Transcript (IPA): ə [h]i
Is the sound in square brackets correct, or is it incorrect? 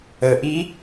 incorrect